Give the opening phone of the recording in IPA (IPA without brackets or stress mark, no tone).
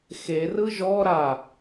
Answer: x